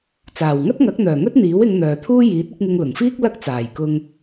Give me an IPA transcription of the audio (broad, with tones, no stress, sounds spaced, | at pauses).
t͡s aː˨˩ w ŋ ɐ˥ t̚ ŋ ɐ˨˥ k̚ n̪ œː˨˩ ŋ ɵ˥ t̚ n̪ iː˨˥ w ɪ˨˧ ŋ n̪ œː˨ t̪ʰ uː˥ j iː˨˥ t̚ ɪ˨˥ k̚ ŋ ɪ˧ ŋ l ʊ˨˩ ŋ f iː˥ k̚ l ɐ˥ k̚ t͡s aː˨˩ j k ʊ˧ ŋ